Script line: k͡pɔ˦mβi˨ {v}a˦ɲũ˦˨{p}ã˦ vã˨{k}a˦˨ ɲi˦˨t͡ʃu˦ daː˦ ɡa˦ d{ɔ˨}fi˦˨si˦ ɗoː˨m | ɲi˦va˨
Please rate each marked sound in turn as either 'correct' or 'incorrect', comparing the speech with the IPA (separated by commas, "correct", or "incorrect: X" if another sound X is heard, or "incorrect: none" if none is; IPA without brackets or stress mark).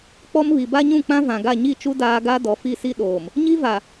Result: incorrect: b, incorrect: k͡p, incorrect: ɡ, correct